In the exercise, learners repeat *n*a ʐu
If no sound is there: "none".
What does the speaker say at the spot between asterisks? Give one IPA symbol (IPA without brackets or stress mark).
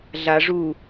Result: ɮ